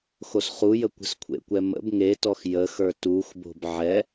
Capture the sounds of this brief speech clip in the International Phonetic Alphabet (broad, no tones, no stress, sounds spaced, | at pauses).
x o s χ u j ə kʷ ə̤ s kʷʰ ḛ kʷ ɛ m ə̰ b ŋ e t ɔ x j ə x ə˞ t u x b o̤ b ʕ ɛ